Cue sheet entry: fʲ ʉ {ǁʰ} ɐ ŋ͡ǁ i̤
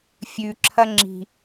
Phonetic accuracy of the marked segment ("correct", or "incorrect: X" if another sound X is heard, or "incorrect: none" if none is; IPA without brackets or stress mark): correct